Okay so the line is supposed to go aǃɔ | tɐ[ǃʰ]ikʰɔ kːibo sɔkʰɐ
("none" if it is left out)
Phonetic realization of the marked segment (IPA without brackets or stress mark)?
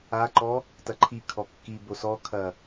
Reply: ǃʰ